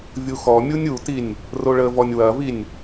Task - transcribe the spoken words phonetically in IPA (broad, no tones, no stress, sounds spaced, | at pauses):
vʲ u x ɔ mʲ u nʲ u t i nʲ | r o ɭ ə v ɔ nʲ w ɐ v i nʲ